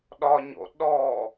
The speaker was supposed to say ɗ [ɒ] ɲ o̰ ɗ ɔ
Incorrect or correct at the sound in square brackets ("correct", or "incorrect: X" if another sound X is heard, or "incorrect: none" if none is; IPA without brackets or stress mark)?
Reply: correct